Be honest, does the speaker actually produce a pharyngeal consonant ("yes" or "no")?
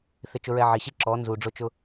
yes